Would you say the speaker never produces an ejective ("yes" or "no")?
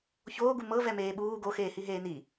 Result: yes